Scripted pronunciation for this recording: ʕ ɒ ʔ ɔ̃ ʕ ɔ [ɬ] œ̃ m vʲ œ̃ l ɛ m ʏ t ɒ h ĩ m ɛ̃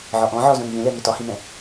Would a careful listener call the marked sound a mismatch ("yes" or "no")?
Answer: yes